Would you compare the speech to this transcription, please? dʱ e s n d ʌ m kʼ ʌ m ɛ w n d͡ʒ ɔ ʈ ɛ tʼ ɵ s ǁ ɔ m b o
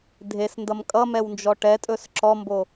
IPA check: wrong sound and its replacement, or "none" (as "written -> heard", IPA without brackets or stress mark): none